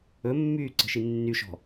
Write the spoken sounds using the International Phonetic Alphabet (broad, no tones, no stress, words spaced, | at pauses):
ɵmːyːǀə̤ʃi nːyʃɔ̤